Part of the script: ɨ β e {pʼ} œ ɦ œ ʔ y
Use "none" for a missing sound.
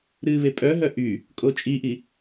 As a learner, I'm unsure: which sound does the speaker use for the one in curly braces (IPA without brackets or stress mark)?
pʼ